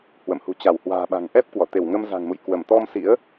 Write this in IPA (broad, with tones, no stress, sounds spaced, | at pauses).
h w ə̰˧˨ m h ṳ˨˩ t͡ɕ a˧˩ w h w a̤ː˨˩ ɓ a̤˨˩ ŋ ʔ ɛ˦˥ p̚ k w ɔ˧˩ t̪ e˧˩ w ŋ ə˧ m z a̤˨˩ ŋ m ṵ˧˨ j k w ə˧˩ m t̪ ɔ˧ m s ḭ˧˥ ə̯